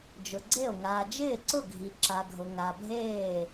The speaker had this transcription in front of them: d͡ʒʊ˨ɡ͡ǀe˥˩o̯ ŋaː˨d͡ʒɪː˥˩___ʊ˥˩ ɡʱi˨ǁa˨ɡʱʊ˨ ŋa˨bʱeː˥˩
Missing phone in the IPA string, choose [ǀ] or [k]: ǀ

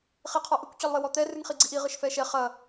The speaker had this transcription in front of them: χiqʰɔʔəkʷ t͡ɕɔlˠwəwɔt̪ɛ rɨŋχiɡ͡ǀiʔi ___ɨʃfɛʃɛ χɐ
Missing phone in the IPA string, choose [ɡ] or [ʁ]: ʁ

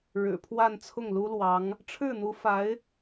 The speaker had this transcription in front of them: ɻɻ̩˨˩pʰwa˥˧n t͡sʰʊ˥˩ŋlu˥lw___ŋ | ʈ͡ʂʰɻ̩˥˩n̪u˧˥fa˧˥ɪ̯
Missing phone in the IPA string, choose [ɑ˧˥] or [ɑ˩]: ɑ˧˥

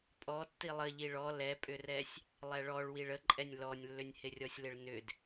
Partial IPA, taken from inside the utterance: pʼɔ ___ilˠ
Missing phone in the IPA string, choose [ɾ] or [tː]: tː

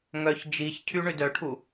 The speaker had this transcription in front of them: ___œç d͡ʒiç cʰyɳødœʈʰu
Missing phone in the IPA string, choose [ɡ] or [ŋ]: ŋ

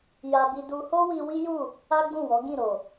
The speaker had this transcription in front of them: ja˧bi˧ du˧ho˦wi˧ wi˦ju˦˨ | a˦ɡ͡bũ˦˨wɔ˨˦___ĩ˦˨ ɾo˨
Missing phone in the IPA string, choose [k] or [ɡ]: ɡ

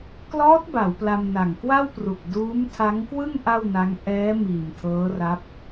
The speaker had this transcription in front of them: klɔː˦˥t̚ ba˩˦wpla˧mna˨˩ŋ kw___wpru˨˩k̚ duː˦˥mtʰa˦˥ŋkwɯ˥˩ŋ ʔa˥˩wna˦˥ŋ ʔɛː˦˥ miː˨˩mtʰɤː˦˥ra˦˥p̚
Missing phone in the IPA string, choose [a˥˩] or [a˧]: a˥˩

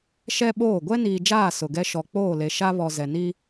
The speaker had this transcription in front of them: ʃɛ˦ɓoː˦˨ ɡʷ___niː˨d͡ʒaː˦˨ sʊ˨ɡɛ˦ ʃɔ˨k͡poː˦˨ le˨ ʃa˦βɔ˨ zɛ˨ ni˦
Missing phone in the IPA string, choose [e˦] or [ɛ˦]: ɛ˦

